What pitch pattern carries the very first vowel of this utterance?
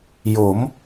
rising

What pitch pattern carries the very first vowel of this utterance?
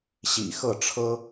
low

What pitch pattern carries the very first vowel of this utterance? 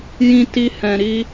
high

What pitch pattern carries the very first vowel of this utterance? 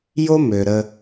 high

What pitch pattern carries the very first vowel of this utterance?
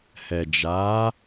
low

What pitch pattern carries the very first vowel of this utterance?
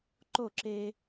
falling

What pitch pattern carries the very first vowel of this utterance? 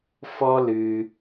high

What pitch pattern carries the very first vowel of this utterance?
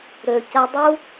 low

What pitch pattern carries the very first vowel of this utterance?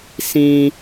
high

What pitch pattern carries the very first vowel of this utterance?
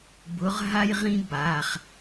rising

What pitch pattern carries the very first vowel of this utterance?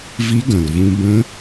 rising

